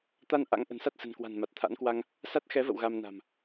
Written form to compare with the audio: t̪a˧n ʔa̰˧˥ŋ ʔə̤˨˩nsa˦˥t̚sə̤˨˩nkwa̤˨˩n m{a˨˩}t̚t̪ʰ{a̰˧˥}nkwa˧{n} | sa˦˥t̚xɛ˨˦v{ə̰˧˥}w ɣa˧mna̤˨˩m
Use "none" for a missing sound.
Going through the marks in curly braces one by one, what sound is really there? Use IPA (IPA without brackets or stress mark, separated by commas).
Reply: a˨˩, a̰˧˥, ŋ, ə̰˧˨